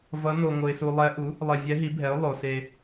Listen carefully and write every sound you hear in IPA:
v ʌ˧˥ n o˧ ŋ o˧ ɪ̯ s u˧ lˠ ɛ˧˥ ʔ u˩˥ | lˠ e˧ vʲ ɛ˧˥ ɦ i˩˥ bʱ ɛ˩˥ ʊ̯ lˠ o˩˧ s e˧

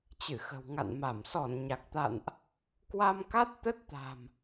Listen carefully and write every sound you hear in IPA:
t͡ɕ ɨ˧˩ x ə̤˨˩ w ŋ a̰˧˨ n m a˧˩ m s ɔ˧˩ n ɲ a˨˩ k̚ t̪ a̰˧˨ n ʔ | k w a˧ m k a˦˥ t̚ t̪ ə˦˥ t̚ t̪ a̤˨˩ m

